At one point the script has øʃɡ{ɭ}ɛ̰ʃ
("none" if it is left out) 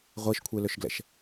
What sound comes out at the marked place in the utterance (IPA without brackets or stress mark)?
l